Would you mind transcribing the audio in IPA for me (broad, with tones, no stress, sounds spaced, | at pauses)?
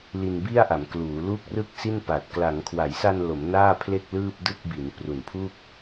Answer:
l i˧ n b i˥˩ a̯ ʔ a˩˦ m k l uː˩˦ l u˥˩ k̚ r ɯ˥˩ k̚ s i˥˩ n p a˨˩ t̚ k l a˩˦ ŋ kʰ w a˩˦ j s a˧ n l o˩˦ m n aː˥˩ pʰ l e˥˩ k̚ l ɯː˥˩ p̚ d ɯ˥˩ k̚ b i˩˦ n p r u˨˩ n pʰ u˥˩ k̚